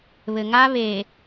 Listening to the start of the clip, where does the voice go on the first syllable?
low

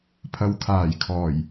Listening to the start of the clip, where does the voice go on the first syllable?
low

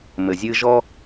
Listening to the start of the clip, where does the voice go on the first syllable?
low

